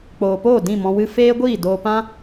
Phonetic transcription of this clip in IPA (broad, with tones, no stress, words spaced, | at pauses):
k͡poː˨poː˦˨ dĩ˦˨mɔ̃˧wɨ˦ feː˦ɡʷiː˦˨ doː˧pã˦